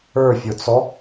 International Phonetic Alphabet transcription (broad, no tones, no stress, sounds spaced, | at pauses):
ə˞ fʲ ʊ t͡s ɔ